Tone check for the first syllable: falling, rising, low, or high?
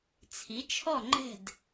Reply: rising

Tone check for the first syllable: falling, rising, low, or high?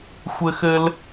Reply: high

